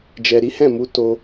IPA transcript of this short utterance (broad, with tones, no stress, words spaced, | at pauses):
d͡ʒɛ˨ɾi˨˦hɛ̃˦˨mu˧ to˧